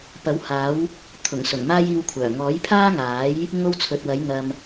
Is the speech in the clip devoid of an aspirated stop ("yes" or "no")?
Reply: no